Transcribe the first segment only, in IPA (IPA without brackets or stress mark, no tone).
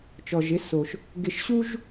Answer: t͡ʃ